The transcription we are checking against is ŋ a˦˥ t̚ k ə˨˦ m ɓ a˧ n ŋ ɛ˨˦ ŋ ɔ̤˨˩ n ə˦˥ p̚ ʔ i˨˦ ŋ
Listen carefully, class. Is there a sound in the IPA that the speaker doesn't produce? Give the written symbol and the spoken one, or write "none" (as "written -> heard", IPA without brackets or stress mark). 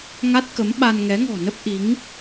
none